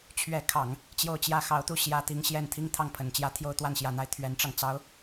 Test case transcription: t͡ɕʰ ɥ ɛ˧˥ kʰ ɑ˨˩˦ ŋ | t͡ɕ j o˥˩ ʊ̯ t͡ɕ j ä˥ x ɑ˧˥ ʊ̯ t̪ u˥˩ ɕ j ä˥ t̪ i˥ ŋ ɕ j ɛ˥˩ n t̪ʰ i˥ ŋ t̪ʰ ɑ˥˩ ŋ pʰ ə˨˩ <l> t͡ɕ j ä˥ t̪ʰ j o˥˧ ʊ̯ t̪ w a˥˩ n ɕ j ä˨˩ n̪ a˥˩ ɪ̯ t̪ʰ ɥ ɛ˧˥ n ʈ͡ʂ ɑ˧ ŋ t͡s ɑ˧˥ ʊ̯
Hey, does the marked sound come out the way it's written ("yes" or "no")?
no